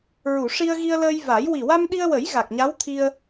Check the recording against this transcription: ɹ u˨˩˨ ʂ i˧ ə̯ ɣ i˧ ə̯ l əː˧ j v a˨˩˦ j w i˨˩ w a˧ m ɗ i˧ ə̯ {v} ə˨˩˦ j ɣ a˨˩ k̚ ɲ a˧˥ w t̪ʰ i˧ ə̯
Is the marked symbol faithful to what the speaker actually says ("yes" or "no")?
no